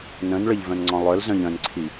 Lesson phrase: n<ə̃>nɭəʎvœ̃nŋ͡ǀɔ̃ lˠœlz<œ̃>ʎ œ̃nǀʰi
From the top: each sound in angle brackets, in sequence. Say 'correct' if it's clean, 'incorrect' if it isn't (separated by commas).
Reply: correct, correct